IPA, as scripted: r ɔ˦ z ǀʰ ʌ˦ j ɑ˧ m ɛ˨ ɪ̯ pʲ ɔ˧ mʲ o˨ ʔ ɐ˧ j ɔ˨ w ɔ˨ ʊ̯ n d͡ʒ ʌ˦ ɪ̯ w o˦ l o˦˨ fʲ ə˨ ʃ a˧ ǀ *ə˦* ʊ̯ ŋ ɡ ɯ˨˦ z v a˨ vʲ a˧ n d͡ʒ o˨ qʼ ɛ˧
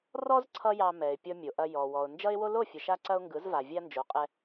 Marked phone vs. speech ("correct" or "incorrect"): incorrect